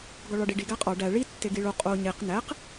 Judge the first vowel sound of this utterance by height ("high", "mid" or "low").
low